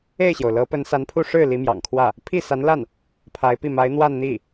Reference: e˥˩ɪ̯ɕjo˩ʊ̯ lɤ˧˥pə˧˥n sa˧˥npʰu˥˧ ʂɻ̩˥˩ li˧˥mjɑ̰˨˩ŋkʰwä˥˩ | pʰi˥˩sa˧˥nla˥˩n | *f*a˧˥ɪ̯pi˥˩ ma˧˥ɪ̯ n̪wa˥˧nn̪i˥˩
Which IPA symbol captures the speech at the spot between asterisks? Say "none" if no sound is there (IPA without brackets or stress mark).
pʰ